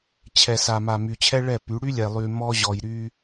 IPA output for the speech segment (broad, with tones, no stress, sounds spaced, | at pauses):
t͡ɕʰ ɛ˨ s a˨ m a˨ m y˨ t͡ɕʰ ɛ˦ ɭ ɛ˦˨ p y˨˦ ɽ y˦ lʲ ɛ˨ lˠ y˨ m ɔ˦ ʑ ɔ˨ j ɾ y˦